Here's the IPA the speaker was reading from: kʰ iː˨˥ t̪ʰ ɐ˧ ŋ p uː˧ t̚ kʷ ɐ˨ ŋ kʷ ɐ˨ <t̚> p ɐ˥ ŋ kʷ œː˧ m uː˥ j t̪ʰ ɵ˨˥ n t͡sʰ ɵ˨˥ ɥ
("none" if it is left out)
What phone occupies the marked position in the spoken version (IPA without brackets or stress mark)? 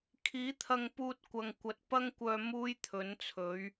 t̚